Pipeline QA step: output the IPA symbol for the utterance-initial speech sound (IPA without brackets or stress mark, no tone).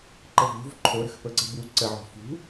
ǃ